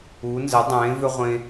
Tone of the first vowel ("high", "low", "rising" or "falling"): rising